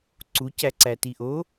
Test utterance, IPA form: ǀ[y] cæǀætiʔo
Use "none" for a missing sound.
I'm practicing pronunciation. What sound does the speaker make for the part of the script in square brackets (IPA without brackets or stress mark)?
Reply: u